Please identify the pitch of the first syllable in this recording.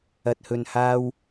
low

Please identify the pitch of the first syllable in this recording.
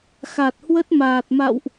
low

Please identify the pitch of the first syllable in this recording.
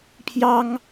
high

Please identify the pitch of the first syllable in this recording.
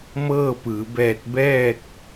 falling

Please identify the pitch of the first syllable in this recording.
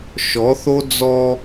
rising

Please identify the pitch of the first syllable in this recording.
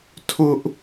high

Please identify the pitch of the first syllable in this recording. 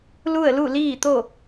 falling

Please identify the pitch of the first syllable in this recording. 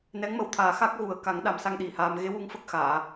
rising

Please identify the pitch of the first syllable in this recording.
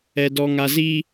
low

